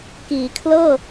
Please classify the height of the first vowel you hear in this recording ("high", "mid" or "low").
high